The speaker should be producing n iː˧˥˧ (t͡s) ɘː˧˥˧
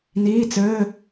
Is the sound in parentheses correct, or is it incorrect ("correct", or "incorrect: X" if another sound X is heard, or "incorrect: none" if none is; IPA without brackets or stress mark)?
correct